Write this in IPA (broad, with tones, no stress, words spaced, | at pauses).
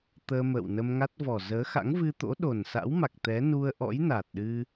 t̪əː˧mə̰ː˧˨wnə˧mŋa˦˥t̚ vɔ˨˩ zəː˨˦xa̰˧˥ŋvɨ˧t̪o̰˧˥ ɗo˨˩nsa̰˧˥wma˨˩k̚ t̪ɛ˨˦nu˧ə̯ʔɔ̰˧˥j na˨˩t̚ɗɨ˧